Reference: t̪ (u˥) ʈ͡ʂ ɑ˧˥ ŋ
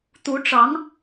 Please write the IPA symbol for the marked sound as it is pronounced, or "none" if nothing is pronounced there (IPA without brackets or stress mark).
u˧˥